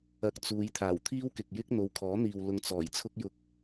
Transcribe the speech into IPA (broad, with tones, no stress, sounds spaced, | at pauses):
ɐ˧ k̚ t͡s uː˨˧ j t̪ʰ aː˨˩ w t̪ʰ iː˥ w k ɪ˨ k̚ j ɪ˥ k̚ n̪ o˨˧ w kʰ ɔː˨˥ n̪ iː˨ w l ʊ˧ ŋ t͡s ɔː˨˩ j t͡sʰ ʊ˥ k̚ j ʊ˧ k̚